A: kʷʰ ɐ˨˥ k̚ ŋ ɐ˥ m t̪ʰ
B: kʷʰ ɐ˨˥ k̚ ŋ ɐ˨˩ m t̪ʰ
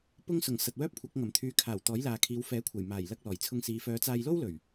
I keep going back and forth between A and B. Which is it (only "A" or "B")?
B